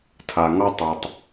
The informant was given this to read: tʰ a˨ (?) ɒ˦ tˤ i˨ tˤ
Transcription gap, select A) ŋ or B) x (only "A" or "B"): A